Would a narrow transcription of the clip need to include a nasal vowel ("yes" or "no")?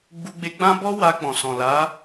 yes